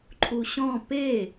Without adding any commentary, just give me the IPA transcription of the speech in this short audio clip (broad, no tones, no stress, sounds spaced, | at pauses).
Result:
ǃʰ u ɕ ɔ̃ p e